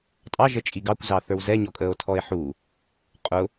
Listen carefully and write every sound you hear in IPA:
tʼ ɑ ʒ əː t͡ʃʼ i ɡ ɑ kʷ z ɑ θ ə˞ w z ɛ ɲ ɔ kʼ əː o̯ tʰ ɔ e̯ ħ u | qʼ ʊ

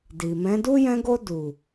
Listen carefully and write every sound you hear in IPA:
d i˨ m ɛ̃˨˦ d u˦ j ɛ̃˧ ɡ o˧ d u˨

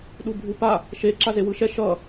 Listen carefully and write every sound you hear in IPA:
ɗ u bʱ u p a | ʃ e ǁ a z e w ɯ ʃ ɛ ʃ ʌ

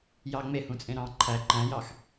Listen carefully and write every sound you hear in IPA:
j ɑ ŋ͡m e h ũ t͡sʼ ẽ ɾ ɑ̃ ǃʰ æ ǃ æ̃ j ɑ x

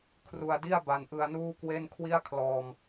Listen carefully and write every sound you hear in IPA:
kʰ r u˧ a̯ d i˥˩ a̯ b a˧ n ʔ ɯ˧ a̯ n uː˥˩ k w e˥˩ n kʰ w i˥˩ a̯ kʰ l ɔː˧ m

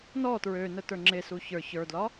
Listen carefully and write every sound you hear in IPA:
n ɔ t ɹ ø n ə t ə˞ ŋ͡ǁ e s u ç ə˞ ç ə˞ d l ɒ

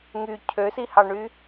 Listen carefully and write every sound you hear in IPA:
ŋ y cʰ ø s i h ɑ ɳ y

